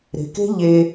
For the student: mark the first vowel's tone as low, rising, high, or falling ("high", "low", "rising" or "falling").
low